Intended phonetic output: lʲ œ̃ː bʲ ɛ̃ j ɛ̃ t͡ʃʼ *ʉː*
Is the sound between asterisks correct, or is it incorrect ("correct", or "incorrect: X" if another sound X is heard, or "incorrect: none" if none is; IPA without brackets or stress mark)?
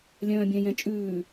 correct